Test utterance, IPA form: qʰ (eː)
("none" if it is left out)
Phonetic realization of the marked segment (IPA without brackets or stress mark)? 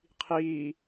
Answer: iː